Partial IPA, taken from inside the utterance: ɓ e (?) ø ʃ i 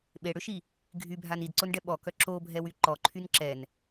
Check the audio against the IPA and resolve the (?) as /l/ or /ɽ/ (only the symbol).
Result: ɽ